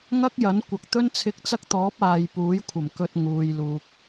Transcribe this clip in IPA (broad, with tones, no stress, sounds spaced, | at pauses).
ŋ ɐ˥ k̚ j ɐ˨˥ n kʷ ɐ˨ k̚ t̪ ɵ˥ n t͡sʰ ɪ˧ k̚ t͡s ɐ˥ k̚ t̪ ɔː˨˥ p̚ aː˨ j p uː˨˥ j kʷʰ ɐ˨˩ m k ɵ˧ t̚ ŋ uː˨ j l uː˨ k̚